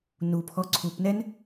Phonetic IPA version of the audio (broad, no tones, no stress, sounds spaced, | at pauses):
n u pʰ ɔ ǀʰ u p n ɛ n